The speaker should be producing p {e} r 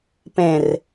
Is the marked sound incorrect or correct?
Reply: incorrect: ẽ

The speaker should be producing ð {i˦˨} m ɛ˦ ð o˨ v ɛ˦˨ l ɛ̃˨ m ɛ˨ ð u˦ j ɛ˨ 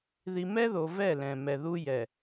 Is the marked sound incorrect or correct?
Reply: incorrect: i˨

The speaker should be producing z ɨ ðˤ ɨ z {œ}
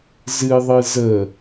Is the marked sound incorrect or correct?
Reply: incorrect: ə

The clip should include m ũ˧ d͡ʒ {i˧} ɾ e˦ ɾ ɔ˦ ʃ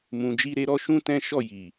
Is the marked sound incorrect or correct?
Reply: incorrect: i˦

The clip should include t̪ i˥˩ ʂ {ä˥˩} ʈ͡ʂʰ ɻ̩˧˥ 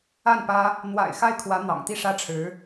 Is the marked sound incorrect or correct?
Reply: incorrect: ä˥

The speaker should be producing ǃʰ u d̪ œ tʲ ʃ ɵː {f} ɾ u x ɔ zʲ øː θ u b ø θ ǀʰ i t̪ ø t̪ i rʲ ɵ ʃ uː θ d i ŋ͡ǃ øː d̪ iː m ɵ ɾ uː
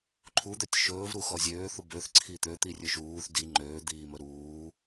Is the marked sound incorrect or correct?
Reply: incorrect: v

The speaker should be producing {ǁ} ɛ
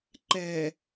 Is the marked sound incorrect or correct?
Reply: incorrect: ǃ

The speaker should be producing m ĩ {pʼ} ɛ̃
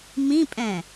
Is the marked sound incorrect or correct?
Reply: correct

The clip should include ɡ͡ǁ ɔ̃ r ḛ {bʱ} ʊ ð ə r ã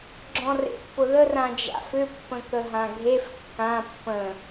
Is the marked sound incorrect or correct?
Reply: incorrect: pː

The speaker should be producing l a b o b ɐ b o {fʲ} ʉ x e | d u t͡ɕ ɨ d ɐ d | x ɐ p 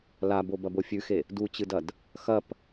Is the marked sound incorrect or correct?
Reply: correct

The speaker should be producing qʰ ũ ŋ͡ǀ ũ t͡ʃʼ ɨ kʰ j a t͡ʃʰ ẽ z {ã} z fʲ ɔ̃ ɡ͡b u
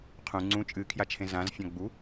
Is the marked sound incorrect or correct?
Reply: correct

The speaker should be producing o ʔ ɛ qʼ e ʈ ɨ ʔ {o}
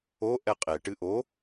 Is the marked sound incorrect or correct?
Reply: correct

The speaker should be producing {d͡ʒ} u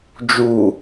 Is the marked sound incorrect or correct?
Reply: correct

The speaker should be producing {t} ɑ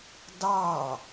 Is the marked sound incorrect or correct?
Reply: incorrect: d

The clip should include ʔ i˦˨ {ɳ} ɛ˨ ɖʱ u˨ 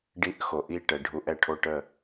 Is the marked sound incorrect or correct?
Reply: incorrect: ʈ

